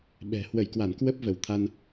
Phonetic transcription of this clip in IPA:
ɓ ɛ̤˨˩ h w ə˧˩ j k w a˧˩ n k w ə˦˥ p̚ v ə˧˩ w t̪ʰ a˧ n

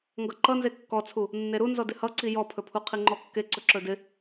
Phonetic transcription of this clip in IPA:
ŋ ɡ ʌ ǃ ʌ n z e kː ɔ t͡sʰ u | nː e ɾ u n z ɔ d ɪ h ʌ ǀ i j ɔ pʰ ɵ pʰ u qʰ i ŋ͡ǃ ɔ kː e ǀ ɵ ǁ ɵ d ɪ

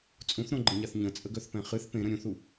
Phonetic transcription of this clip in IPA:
t͡sʼ ũ θ ɾ õ ɡ͡ǃ ə ɲ a θ ɲ ə̃ t͡sʼ ə ɡ œ θ p ɛ̃ χ ɨ θ p ẽ ɾ ə̃ ɾʲ ũ θ u

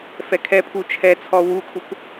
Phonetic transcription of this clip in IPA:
f ɛ kʰ ɛ pʰ u t͡ʃʰ ɛ t͡sʰ ɔ w u kʰ u k

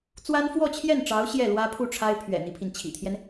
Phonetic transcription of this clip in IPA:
t͡s w a˥ n f w ɔ˥˧ t͡ɕʰ j ɛ˥˩ n ʈ͡ʂ ɑ˧˥ ʊ̯ ɕ j ɛ˥˩ l w ä˥ pʰ u˥˩ ʈ͡ʂʰ a˥ ɪ̯ pʰ ɥ ɛ̰˨˩ n̪ i˦ pʰ i˩ n t͡ɕʰ ḭ˨˩ t̪ʰ j ɛ˦ n

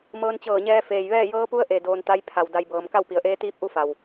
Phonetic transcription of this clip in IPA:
m ɤː˧ n t͡ɕ ɤː˧˩ ɲ ɛː˧ f eː˩ j ʋ ɛː˥˨ j ɤː˧˥ p u˧˥ ə̯ ʔ e˩ d oː˧ n t̪ a˧˥ j pʰ a˩ w d a˧ j b ɤː˩˧ m k a˥˨ w p i˩˧ ə̯ ʔ eː˧˥ t̪ iː˧˥ p̚ ʔ u˧˥ f a˩ w

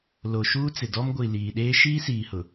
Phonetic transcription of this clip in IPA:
l o˨ ʃ uː˦ t͡s ɪ˨ d ɔ˦ m ɡʷ i˨ l iː˨ ɗ eː˦ ʃ iː˦ s iː˨ h ʊ˨

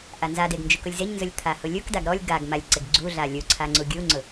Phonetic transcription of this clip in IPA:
ʔ a n z a d e ɡ n d͡ʒ u k ʊ lʲ z e ɲ n z ʊ lʲ t̪ʰ a h ʊ lʲ u k d a ɡ ɾ ɔ lʲ ɡ a ɡ m a lʲ ǀ ɪ ɡ ɡ͡ǀ u ɮ a lʲ u ǀʰ a ŋ͡ǀ u ɡʲ u ŋ͡ǀ ʊ

